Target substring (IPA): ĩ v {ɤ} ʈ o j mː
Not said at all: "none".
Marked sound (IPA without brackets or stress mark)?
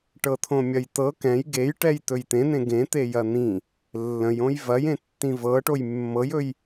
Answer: ɤ